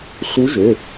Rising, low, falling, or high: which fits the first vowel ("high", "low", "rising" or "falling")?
rising